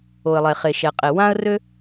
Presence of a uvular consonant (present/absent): present